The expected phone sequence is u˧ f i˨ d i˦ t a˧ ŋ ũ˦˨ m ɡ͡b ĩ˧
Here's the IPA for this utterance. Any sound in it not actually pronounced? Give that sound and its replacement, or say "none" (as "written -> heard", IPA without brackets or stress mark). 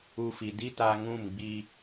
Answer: ĩ˧ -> i˧